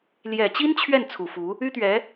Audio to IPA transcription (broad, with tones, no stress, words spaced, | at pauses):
ljɛ˨˩t͡ɕi˥n t͡ɕʰɥɛ˥˩n t͡sʰu˨˩fu˧˥ | y˥t̪ɥɛ˧˥